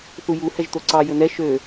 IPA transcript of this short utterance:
θuju hɛʒt̪oǀɑ jɵnɛ ʃø

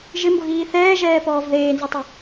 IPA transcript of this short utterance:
ʒɪmbʊɣiː θɛːʒɛːpɔːv ðeːnzutˤɪ

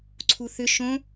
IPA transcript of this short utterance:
ǀʰuθʏ ʃõ

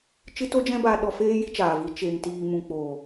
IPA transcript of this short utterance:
t͡ʃɨ˦to˦d͡ʒɛ̃˦ ba˧ɗɔ˧ feː˦ ji˦t͡ʃaː˨vi˧ t͡ʃeː˧ŋtiː˧ mũ˨k͡po˨

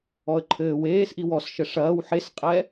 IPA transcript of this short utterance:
ɔə̯ǃʰɘː weːsʔi wɔsʃɘ ʂɐːw ħesqʼɛ

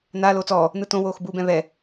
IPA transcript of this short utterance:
na loːt͡sɔː | nɯtõ woːxbuːbɛ̃βɛ

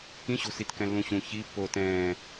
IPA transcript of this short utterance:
kĩɕo̤sitkɛ̃ lːũɕũ çi pːoːtɛ̃ː

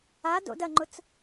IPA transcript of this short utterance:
ado̰ dɐŋ͡ǃʊt͡s

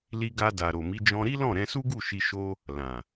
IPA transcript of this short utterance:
li˧ɡa˧ da˨ɾo˨mi˨˦ d͡ʒɔ̃˧ɾi˦lɔ̃˦˨ ɾɛ̃˧su˦ɡu˦˨ʃi˧ ʃo˦ | lã˨

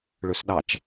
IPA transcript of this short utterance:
ɭʉsɗɑt͡ʃ

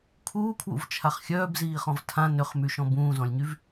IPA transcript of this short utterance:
kʰuːkʰwṵvt͡ʃʰaχ xʲœːbziːχɔ̃v tʰã nʏχmyʃɔ̃ bũːzɔ̃lʲɲyv

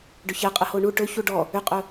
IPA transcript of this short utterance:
ɖʏçɛqʼə hoɳu ʈɵ çuɖɔ | ʏqʼɵ

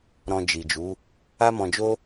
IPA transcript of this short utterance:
ɾɔ̃˧d͡ʒi˨d͡ʒu˨˦ | a˦mɔ̃˧d͡ʒo˦

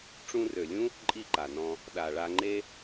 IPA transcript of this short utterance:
ʈ͡ʂũ˧rø˨lʲũ˦ | ǃʼi˦˨ǃa˨nɔ̃˧ | ɗa˨ɭa˧ŋ͡ǃe˦

